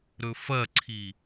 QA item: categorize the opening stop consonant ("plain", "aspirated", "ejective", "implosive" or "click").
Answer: click